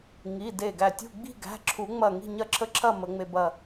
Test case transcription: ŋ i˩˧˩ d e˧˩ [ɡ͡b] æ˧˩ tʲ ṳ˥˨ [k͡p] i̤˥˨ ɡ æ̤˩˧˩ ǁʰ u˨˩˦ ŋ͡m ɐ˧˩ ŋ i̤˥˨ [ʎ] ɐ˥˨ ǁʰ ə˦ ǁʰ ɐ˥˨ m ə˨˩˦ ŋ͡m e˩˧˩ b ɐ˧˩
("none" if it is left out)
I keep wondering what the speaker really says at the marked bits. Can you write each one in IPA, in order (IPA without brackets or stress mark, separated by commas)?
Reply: ɡ, ɡ͡b, ɲ